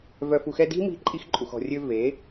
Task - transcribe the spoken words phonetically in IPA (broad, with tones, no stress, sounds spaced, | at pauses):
v œ˨ f u˨ x ɛ˧ d i̤˦ m i̤˧ ǃʼ i˧ x ǃʼ u˨ x ɔ̤˨ rʲ ø˧ v e˨˦